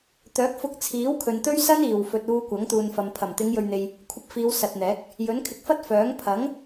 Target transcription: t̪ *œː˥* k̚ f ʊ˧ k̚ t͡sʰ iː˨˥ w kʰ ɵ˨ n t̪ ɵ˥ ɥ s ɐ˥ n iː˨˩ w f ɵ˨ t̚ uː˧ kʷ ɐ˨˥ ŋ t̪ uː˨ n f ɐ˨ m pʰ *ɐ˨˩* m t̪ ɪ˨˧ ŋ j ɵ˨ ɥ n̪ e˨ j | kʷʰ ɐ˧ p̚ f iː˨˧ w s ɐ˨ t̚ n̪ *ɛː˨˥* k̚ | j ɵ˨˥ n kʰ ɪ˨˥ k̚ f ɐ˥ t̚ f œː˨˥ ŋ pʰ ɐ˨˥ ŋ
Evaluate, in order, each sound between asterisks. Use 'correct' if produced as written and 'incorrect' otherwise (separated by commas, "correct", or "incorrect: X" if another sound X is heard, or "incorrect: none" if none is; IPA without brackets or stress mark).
incorrect: œː˨˥, correct, correct